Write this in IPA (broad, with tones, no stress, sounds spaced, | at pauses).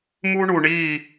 m u˦ ɳ u˨ ɳ i˦˨